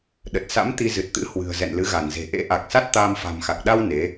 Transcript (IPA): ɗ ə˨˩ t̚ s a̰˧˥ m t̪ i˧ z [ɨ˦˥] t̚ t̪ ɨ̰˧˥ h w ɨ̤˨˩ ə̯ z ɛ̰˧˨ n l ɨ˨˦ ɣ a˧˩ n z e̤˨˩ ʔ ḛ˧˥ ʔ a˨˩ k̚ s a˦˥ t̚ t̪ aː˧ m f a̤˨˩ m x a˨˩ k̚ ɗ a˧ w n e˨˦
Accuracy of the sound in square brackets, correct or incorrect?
incorrect